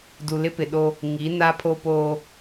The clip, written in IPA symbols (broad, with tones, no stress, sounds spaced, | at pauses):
d u˨ l ɪ˦ p ɪ˨ ɗ o˦ | ŋ i˨˦ n a˦ pʰ o˦ p oː˦